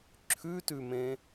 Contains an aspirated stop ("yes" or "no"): yes